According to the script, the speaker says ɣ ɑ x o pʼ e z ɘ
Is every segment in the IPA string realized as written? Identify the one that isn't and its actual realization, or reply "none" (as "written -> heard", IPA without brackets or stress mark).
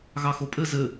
e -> ɘ